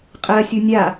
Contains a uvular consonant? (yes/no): yes